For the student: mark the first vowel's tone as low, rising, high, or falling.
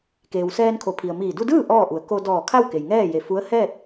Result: low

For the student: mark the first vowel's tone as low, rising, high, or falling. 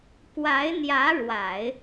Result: rising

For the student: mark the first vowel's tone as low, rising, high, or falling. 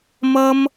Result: high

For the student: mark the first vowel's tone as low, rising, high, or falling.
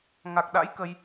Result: low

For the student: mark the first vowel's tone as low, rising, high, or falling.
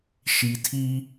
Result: low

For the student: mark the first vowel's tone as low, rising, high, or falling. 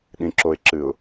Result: low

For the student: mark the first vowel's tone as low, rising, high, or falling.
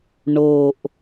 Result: low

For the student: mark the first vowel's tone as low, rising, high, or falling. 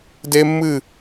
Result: high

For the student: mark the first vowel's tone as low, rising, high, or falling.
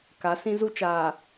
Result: rising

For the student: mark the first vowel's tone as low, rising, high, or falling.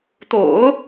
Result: low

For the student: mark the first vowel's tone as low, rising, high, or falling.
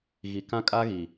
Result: low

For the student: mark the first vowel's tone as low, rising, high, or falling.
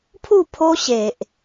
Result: falling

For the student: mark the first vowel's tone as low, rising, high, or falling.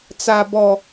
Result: low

